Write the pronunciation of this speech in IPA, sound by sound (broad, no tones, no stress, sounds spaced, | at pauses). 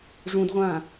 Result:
ʐ ũ d ʁʷ ãː